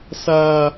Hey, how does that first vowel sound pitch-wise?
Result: high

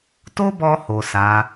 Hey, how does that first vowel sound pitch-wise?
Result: high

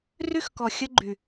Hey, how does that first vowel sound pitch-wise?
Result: high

